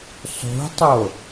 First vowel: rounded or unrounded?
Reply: rounded